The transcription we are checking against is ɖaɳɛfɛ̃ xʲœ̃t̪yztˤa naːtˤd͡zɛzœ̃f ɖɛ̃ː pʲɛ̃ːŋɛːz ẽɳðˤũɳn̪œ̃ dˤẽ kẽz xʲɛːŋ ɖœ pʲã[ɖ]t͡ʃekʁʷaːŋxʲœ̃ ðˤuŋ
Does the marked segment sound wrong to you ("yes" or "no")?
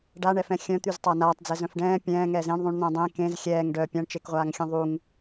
yes